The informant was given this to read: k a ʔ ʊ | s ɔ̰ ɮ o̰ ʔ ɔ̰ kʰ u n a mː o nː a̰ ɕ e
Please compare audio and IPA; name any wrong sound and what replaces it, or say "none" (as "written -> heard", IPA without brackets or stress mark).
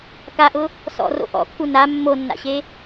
ɮ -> r